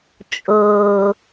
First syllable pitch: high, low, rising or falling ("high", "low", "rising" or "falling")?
low